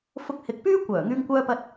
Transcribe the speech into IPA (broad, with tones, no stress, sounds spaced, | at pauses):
f ʊ˧ k̚ h ɪ˨ k̚ p yː˥ kʷ œː˨˩ ŋ yː˧ ŋ kʷ œː˧ p ɐ˧ t̚